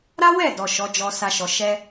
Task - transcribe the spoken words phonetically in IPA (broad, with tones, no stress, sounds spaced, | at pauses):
ɾ a˦ w ɛ˦˨ d ɔ˨ ʃ ɔ˨˦ d͡ʒ ɔ˧ s a˧ ʃ ɔ˨ ʃ ɛ˧